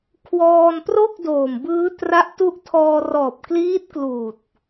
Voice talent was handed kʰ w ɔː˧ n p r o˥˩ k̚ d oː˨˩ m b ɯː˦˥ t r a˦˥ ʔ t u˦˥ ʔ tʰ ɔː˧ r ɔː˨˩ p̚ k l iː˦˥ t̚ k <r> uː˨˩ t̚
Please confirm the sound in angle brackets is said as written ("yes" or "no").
no